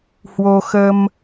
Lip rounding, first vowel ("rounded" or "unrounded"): rounded